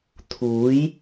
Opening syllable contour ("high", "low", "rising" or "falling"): rising